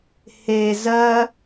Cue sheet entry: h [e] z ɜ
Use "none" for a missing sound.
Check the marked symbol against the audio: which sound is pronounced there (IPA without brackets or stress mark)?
e